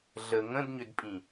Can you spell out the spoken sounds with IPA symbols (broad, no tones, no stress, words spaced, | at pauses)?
ɮə ŋə̃dɲʏdpʼĩ